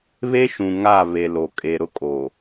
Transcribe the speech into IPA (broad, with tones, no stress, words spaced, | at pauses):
βe˦ʃũ˨ ŋa˦˨βe˨ lo˨kʼe˨ɾʊ˦ kʼo˨